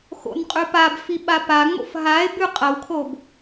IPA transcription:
xo̰nqʼʉpabfi ɓapaŋ͡mo̰f ɦae̯ bʉqʼɐwkʰob

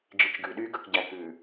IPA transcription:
d͡ʒit͡ʃɡʉɗyːɡ ɵkɟækʉ

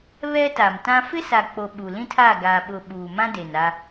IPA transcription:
βɛ˦ta˨mtã˦ fɪ˦sa˨k͡po˨ ɓu˨lĩ˦tʰa˦˨ ɡaː˨ ɓʊ˨ ɓuː˨mã˦ de˨na˦

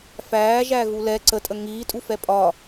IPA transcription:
fæːʒæɣu lɛ ǀətʼə ŋiːtʼufɛ pʼɒ

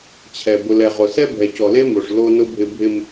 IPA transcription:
t͡ɕʰɛ˨ bʊ˨lɛ˨ʁo˨sɛ˦ bʱɛ˨cɔ˨le˦mo˨ʂ lo˦nʊ˦bʱɪ˦ bʱɪ˦m

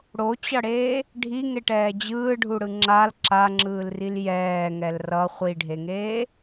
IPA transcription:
ɽot͡ɕʌɽeː | ɖʱiŋeʈɛː d͡ʑɯːɖʱuɽɯ ŋ͡ǁal ǁaŋ͡ǁɯːlril jɛːŋɛl rʌ χʷiɖʱeŋeː

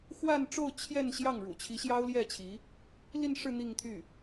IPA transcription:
xwa˥˧nʈ͡ʂo˥˧ʊ̯ t͡ɕʰjɛ˥˧n ɕjɑ˥˩ŋɻṵ˨˩ t͡ɕʰi˧˥ɕjɑ˥ʊ̯ljɛ˥˩t͡ɕʰi˧˥ | li˥˧nʂɻ̩˥˧ n̪i˥˧ŋt̪ʰy˥˩

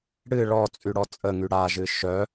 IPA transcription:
ɽɨ ɭɔt͡sʼyɽɔ t͡sʼəŋy ɽaʒɨ ʃœ

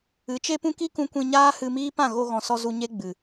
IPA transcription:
ɨ˨˦ t͡ʃe˦pũ˦ ki˦kũ˧ kʷĩ˧ɲaː˦hɨ˧miː˦ pã˦˨ɣo˧ɣɔ̃˨sɔ˧ zu˧ ɲe˦ɡ͡bɨ˨

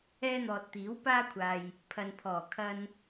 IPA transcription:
ɛː˧n̪ɔː˨t̚t̪iː˨˥w paː˧kʷʰaː˨j | pʰɐ˨npʰɔː˨˩ kʰɐ˧n

